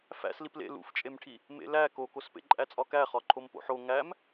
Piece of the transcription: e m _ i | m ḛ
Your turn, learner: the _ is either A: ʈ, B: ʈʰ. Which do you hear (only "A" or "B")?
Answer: B